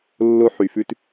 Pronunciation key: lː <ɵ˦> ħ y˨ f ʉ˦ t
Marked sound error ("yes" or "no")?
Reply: yes